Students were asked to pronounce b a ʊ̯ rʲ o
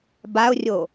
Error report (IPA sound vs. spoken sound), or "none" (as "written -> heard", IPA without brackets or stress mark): none